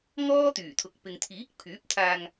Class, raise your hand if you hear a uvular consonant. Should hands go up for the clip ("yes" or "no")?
no